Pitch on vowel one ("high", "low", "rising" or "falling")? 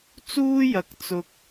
high